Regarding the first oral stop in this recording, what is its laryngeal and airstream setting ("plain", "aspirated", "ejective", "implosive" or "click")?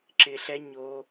click